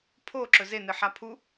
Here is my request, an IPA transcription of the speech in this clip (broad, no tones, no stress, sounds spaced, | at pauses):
pʰ o ǁ ɵ z e n ɨ ħ a pʰ u